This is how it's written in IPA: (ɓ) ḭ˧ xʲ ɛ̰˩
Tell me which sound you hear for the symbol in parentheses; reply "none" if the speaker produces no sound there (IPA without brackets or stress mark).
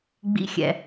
ɡ͡b